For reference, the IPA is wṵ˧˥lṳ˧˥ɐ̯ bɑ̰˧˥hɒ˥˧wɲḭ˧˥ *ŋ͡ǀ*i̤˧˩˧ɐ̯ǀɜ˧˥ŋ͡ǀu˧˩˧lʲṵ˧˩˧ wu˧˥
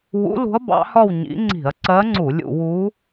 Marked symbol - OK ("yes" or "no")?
yes